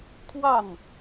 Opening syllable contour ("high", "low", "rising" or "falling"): falling